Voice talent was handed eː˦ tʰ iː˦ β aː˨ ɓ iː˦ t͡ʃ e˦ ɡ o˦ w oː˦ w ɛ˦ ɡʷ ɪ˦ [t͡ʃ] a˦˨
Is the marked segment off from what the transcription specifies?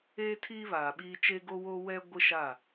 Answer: yes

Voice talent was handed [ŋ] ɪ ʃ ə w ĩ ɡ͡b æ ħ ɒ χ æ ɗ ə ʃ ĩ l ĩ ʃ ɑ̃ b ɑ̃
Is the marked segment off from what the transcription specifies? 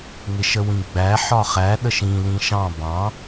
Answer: no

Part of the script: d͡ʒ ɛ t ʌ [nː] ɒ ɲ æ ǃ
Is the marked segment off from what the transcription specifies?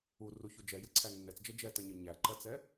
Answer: yes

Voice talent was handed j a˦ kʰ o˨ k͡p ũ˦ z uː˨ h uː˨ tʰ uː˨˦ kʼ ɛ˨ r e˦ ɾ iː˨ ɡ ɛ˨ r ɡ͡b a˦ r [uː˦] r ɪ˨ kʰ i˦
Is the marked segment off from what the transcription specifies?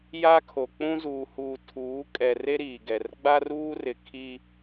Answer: no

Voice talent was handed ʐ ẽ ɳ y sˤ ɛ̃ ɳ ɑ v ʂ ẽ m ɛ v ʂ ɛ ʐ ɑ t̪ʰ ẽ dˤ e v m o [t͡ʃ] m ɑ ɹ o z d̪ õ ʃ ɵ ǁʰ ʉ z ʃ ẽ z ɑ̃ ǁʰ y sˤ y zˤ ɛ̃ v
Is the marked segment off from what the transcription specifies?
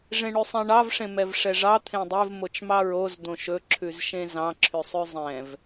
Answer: no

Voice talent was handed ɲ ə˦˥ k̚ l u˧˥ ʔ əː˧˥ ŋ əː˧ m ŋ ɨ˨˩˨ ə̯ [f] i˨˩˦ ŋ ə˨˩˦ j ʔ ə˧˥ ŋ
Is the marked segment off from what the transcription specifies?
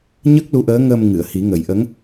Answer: yes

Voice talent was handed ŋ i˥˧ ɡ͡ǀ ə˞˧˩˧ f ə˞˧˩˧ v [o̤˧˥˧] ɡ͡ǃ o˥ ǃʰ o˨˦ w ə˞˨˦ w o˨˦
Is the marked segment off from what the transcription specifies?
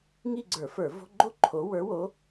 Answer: no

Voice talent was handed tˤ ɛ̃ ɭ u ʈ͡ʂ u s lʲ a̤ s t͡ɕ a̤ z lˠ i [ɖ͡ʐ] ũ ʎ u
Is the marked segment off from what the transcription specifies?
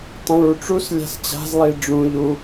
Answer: no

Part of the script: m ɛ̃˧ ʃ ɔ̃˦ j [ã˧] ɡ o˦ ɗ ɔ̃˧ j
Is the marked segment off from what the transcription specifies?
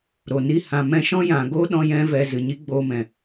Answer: yes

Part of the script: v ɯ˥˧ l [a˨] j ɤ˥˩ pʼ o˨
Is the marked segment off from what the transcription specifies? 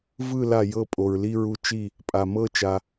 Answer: yes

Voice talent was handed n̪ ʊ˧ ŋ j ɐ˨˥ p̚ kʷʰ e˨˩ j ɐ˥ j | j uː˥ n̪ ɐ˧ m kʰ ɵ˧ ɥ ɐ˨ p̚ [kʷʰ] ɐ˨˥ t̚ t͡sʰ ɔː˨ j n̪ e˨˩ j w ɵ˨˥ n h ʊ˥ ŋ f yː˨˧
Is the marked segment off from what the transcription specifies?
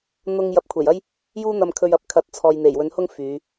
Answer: yes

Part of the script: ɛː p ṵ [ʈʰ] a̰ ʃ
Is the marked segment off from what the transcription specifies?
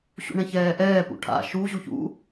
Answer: no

